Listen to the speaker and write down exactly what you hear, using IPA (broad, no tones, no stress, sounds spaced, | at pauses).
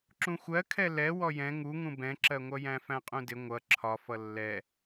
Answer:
ǁ ũ xʷ ɜ kʰ ɛ l ɛ w ɔ j ɛ̃ ŋ u ŋ ũ b ɛ̃ ǁ ɜ ŋʷ ʌ j æ̃ f æ̃ qʼ ũ d ɪ ŋʷ ʌ ǁʰ ɒ f ʌ lː ɛ